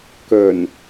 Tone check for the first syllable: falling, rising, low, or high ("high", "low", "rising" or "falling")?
low